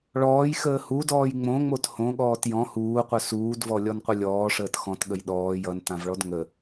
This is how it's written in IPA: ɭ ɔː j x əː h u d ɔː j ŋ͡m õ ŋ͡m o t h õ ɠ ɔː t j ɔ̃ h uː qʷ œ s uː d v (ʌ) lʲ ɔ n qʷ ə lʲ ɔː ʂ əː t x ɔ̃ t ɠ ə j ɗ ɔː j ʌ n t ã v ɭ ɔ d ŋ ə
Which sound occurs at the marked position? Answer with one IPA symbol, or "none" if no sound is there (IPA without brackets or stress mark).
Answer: ɔ